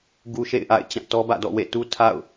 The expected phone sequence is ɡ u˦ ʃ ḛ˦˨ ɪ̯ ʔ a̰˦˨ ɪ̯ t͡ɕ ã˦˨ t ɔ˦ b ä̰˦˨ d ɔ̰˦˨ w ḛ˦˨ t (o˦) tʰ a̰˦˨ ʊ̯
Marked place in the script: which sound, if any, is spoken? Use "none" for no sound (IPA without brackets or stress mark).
u˦